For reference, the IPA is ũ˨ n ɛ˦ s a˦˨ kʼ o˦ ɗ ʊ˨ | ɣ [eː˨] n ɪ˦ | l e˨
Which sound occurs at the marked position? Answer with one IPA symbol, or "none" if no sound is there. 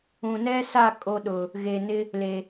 e˨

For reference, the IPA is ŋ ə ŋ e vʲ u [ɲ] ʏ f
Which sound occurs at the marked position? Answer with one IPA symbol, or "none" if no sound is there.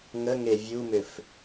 m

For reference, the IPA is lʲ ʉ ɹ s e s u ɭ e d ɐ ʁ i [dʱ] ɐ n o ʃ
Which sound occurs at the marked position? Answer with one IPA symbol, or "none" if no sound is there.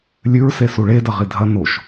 dʱ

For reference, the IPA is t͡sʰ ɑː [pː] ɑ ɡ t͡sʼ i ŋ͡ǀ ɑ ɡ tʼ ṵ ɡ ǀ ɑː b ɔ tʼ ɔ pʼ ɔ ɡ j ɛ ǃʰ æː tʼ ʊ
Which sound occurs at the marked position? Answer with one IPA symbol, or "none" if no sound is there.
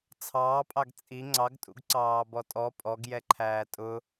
pʼ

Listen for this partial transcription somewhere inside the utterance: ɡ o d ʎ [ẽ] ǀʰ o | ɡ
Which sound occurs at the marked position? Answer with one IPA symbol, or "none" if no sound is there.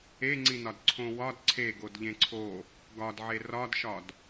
ẽ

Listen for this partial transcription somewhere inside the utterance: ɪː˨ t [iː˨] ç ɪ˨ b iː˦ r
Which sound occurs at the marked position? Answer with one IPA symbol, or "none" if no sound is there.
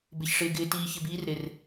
iː˨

